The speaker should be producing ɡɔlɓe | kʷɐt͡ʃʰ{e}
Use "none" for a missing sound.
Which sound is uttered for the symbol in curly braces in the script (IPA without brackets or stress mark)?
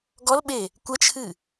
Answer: ɨ